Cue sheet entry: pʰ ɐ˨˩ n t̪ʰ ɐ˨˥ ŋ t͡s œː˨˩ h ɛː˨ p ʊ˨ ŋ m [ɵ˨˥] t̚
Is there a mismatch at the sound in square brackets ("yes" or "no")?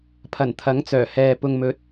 no